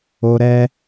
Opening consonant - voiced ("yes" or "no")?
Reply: yes